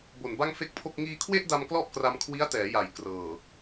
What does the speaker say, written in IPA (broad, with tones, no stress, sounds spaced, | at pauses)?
b o˨˩ n b a˥˩ ŋ f e˥˩ k̚ pʰ o˥˩ k̚ ŋ iː˧ kʰ w e˥˩ ʔ d a˧ m k l ɔ˥˩ ʔ k r a˧ m kʰ w i˦˥ a̯ t ɛː˩˦ j a˩˦ j k r ɤː˨˩